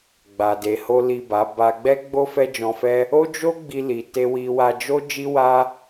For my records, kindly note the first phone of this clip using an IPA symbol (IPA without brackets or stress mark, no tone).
ɡ͡b